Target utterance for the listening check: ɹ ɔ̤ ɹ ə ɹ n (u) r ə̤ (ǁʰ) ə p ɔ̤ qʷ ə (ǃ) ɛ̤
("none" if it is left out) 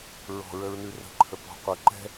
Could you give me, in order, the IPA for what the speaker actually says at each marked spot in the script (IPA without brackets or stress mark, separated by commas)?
ʉ, ǃʰ, ǃ